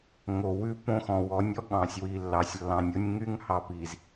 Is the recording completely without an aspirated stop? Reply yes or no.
yes